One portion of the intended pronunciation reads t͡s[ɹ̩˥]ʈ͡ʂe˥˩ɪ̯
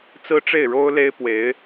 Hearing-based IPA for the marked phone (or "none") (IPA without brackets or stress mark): ɹ̩˥